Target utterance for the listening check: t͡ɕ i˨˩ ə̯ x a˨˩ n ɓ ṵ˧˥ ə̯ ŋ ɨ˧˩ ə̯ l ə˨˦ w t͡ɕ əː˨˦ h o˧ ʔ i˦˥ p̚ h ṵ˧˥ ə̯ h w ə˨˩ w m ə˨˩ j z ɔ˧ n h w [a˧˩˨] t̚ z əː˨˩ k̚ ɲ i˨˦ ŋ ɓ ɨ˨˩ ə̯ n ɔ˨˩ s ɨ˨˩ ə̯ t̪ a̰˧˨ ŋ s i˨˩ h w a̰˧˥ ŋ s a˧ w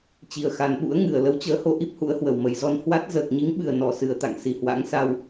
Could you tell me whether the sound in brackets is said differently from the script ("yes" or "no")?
yes